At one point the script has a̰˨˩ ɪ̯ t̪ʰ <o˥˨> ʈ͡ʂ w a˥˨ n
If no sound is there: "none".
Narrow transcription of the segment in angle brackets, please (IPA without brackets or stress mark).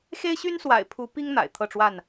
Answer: ɤ˥˨